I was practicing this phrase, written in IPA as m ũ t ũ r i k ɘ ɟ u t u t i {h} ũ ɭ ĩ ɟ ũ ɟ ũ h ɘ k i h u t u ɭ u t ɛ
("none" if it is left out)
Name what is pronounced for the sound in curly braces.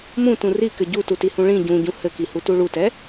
h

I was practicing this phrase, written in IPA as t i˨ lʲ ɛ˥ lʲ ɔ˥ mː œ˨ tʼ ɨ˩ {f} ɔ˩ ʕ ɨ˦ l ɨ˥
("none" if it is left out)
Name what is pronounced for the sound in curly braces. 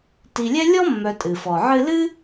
f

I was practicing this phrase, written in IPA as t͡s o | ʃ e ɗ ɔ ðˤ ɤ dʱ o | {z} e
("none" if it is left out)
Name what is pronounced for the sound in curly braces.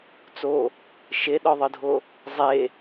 zˤ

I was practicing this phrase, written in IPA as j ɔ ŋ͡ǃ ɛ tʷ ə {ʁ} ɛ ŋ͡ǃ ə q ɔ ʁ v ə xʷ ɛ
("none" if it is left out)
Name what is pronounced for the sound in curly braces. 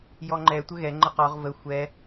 ɣ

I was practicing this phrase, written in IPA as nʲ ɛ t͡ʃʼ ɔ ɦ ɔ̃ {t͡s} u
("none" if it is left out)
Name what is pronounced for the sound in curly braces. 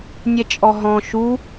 ʃ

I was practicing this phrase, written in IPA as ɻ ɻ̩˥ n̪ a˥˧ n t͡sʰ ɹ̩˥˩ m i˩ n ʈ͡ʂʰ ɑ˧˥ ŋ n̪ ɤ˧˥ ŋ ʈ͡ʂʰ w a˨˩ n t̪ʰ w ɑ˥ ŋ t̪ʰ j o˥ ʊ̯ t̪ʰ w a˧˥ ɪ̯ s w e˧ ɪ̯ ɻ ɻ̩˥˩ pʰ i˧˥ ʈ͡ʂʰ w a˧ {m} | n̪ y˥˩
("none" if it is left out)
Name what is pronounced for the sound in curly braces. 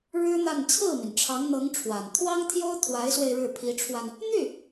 n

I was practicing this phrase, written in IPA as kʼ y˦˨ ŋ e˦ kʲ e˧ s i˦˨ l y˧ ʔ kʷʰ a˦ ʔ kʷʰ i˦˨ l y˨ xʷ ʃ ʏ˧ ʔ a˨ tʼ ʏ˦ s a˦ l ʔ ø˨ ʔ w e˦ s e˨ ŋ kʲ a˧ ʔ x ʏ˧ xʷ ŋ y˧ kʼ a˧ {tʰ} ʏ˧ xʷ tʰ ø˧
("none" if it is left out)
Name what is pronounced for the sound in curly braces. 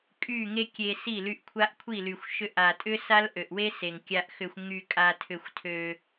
tʰ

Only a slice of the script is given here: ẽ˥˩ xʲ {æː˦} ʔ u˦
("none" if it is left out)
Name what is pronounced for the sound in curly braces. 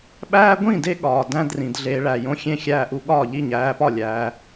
æː˦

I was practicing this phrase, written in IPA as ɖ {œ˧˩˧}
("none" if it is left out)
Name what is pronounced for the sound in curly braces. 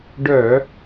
œ˧˩˧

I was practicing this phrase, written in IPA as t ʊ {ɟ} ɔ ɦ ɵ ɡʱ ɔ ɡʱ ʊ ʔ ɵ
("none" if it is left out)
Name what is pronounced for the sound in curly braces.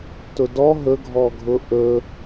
d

